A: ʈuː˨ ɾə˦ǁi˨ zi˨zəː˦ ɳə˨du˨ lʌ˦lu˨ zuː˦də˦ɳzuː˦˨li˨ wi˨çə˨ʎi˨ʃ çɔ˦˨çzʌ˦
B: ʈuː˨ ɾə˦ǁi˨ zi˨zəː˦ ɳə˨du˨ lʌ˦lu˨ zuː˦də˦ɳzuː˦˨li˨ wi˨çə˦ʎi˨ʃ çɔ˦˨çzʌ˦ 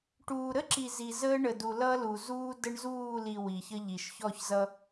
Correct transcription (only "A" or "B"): B